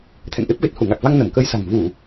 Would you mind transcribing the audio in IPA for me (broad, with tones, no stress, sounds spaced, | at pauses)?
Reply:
t̪ʰ ɛ̰˧˨ ŋ ʔ e˦˥ p̚ ɣ e˨˩ t̚ h u˧˩ ŋ a˨˩ k̚ v a˧ ŋ n ə˧˩ m k ə˧ j s a̤˨˩ ŋ v u˧˩˨